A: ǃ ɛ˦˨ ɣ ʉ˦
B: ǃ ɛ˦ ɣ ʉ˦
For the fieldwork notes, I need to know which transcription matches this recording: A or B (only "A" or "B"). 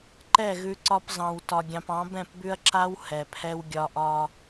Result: A